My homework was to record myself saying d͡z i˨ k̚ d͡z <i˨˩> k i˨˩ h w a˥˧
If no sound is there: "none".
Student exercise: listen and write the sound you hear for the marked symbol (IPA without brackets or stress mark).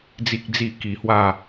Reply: i˨˩